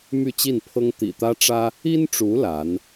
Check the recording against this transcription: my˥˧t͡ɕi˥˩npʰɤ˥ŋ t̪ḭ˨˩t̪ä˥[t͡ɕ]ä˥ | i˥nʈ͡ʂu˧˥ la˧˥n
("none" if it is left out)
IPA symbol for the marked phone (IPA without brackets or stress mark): ʈ͡ʂ